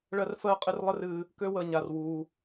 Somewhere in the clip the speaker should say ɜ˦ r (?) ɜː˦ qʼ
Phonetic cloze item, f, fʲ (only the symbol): f